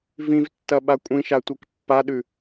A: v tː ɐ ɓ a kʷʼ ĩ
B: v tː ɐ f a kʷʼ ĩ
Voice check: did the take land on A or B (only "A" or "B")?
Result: A